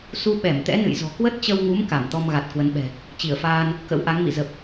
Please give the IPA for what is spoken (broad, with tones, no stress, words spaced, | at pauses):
su˧ ɓɛ˧˩mt̪ɛ̰˧˥nɨ̰˧˨j zɔ̤˨˩ kwə˦˥t̚t͡ɕə˧wŋu˨˦m ka˧˩mt̪ɔ˧mɣa˨˩t̚ kwə˨˦nɓɛ̤˨˩ | t͡ɕi˧˩ə̯faː˧n | kə̰˧˥wʔa˨˦ŋmḭ˧˨ zə˨˩p̚